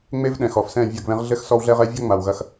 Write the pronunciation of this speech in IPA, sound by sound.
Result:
ŋ͡me˦vɗɛ̃˨x ɔ˨fsɛ̃˦˨ vʲɐ˦˨ɡβɛ̃˦ʁ ɮɘ˦x sɔ˦wɮɛ˦ʁɛ˦ vʲɔ˦ŋ͡ma˨wɣɐ˦x

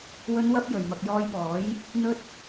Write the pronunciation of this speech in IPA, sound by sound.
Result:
wɵ˨˧nwɐ˧p̚ jɵ˨˩ɥmɐ˨k̚jɔː˧jpɔː˨˥j | n̪ɵ˧t̚

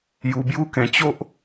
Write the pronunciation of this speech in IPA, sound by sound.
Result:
ju˧bju˦ kẽ˧ t͡ɕo˦ʔ

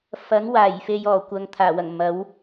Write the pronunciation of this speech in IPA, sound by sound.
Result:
fɐ˨˥ŋ waː˨˩j fe˨j ɔː˨˩kʷɐ˨ŋ t̪ʰaː˨˩wɐ˨˩ŋ mɐ˨˥w

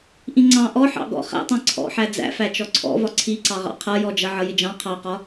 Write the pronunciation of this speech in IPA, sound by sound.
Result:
ʔĩŋ͡ǀɑ̃ ʔɔ ħɑ̰ɡɔ̰ χæ̰tˤɑ̃ ǀʰɔ̰ħæ d͡zæ̰fæ t͡ʃɔǀʰɔ̰vɒ ǀʰiǀɑʁɑ̰ qʰʌjɔd͡ʒʌ ʕʌjɪd͡ʒɑ̃ qʰɑqɒ

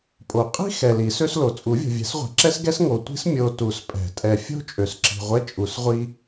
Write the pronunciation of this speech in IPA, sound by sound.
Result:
pʼo˨˩˦ qʼi̤˥ xɛ˨li˨˩˦sø˥slo˨ t͡sʼu˨˩˦vʲo̤˨vʲɛ̤˨˩˦sʁʷe̤˨ ǁɛ˥sɡɛ˥s ŋo˨tʷi̤˥s mʲo˨ tu˨˩˦spʼɛ̤˨˩˦tʼɛ˨fʲo̤˥ t͡ʃʼø˨sǁi̤˨ ʁʷɛ˥ t͡ʃʼu˨˩˦sʁʷi˥

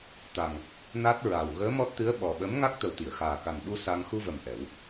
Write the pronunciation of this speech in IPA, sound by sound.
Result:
t̪a˨˩ŋ | na˦˥t̚ɹa˨˩w ɣəː˧˥mɔ˦˥t̚t̪ɨ˧˥ə̯ ɓɔ˨˩ ɓə˧˥m ŋa˦˥k̚t̪ə˨˩wt̪i˨˩˨ə̯xaː˨˩ ka˨˩nɓu˧ sa˧ŋ xu˧və˨˩m ʔɛ˨˩˦w

